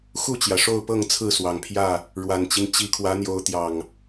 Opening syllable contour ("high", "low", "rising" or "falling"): falling